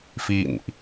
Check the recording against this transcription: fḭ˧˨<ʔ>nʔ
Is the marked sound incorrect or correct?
incorrect